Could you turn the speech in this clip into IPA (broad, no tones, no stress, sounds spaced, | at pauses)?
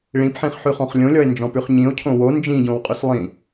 ɭ ĩ p ħ ĩ χ ħ ʉ χ ɔ̃ χ lʲ õ lʲ ɔ e̯ n d͡ʒ ɔ̃ p ʉ χ ɲ ĩ o̯ cʰ õ w o n d͡ʒ ĩ ɟ õ w qʼ ʉ s lˠ ĩ